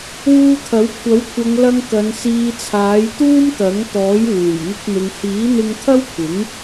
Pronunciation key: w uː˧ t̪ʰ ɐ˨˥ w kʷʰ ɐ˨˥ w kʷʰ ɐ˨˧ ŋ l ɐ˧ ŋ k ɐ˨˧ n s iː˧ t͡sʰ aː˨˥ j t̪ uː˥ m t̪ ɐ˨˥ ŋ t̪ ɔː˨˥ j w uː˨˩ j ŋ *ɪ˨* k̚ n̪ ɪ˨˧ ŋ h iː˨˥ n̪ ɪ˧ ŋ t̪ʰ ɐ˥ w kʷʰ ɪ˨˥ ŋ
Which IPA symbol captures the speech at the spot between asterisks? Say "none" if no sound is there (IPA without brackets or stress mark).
ɪ˧